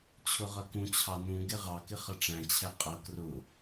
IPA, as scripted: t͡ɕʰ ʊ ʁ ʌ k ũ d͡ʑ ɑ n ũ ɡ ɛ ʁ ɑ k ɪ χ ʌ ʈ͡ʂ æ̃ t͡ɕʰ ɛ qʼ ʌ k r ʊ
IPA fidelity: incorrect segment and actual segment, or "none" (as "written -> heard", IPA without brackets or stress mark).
d͡ʑ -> t͡ɕʰ